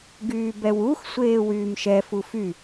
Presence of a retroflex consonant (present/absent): absent